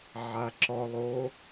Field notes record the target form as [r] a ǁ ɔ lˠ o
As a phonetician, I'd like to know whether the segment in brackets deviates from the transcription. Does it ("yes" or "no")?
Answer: yes